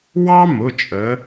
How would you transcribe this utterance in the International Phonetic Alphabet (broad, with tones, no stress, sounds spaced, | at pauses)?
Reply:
w ɑ˥ m ʊ˩˧˩ t͡ʃʼ ə˨˦